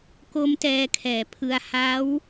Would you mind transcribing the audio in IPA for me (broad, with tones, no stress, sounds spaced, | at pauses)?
k o˦˥ m t ɛː˧ kʰ ɛː˨˩ pʰ ɯ˧ a̯ h a˦˥ w